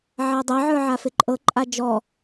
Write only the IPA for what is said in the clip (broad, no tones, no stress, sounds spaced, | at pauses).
ʕ a dˤ ɐ ʕ ə˞ ʕ a f ɪ ǃʼ ɤ ǃʼ a d͡ʒ ɔ